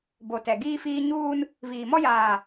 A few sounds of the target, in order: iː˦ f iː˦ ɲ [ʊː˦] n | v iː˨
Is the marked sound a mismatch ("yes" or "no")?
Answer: yes